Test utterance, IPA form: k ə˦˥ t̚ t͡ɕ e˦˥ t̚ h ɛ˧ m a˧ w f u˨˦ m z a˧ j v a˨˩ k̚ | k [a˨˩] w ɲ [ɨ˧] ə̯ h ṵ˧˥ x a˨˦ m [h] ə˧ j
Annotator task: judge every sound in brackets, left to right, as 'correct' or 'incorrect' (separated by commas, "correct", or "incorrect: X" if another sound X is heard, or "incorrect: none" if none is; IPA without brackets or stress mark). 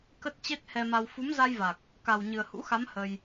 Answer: correct, incorrect: ɨ˨˩, correct